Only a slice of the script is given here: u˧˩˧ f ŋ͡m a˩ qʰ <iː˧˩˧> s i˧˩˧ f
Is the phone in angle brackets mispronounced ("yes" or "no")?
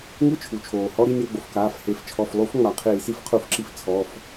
no